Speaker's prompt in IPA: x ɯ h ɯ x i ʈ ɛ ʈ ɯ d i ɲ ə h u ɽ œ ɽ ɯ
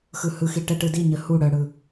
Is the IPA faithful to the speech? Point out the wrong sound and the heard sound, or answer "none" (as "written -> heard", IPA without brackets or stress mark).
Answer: none